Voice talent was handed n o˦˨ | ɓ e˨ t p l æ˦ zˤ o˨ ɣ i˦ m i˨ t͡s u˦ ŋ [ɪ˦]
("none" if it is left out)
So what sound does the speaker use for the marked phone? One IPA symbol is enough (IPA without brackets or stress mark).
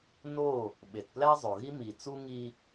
i˦